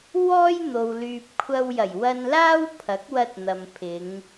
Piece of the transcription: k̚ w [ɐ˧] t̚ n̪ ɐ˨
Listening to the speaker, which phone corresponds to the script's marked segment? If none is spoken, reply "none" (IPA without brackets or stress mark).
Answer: ɐ˧